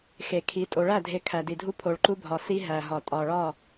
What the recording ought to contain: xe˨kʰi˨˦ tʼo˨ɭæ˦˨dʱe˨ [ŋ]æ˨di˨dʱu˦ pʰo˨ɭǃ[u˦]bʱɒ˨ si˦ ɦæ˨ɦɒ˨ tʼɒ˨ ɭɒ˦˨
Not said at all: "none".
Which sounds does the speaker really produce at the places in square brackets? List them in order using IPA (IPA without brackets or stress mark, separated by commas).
kʰ, u˦